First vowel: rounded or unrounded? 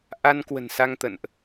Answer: unrounded